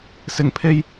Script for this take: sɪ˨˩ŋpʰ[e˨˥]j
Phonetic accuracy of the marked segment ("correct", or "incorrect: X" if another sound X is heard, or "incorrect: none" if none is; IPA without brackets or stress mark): incorrect: e˧